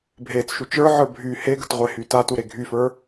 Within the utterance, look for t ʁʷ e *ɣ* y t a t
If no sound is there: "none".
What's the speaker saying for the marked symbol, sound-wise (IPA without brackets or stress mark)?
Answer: h